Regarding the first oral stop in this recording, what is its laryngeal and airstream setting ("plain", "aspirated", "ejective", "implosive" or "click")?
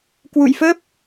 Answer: plain